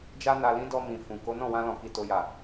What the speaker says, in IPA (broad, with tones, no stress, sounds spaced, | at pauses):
d͡ʒ a˦ n a˧ l ĩ˦ d ɔ˧ m ĩ˨ f ũ˨ k o˨˦ n ɔ̃˦˨ w ã˧ l ɔ̃˨ k i˨ t o˨ j a˨